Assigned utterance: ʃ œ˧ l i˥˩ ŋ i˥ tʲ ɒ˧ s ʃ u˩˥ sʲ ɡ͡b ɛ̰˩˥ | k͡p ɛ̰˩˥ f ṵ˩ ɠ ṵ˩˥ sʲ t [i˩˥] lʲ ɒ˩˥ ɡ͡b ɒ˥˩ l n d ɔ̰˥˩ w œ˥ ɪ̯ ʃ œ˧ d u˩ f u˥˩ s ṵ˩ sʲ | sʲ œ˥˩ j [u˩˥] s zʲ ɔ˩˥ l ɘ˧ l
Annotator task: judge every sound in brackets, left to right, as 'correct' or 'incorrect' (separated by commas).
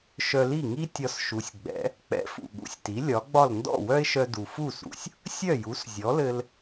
correct, correct